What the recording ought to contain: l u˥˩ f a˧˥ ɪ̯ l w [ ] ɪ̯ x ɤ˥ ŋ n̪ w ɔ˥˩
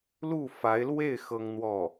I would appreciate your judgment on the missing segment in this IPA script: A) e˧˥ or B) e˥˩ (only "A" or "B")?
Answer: B